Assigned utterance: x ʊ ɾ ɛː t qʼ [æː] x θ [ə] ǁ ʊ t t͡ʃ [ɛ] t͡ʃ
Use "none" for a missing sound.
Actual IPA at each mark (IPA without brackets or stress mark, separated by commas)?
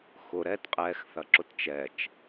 ɛː, ɐ, ɛ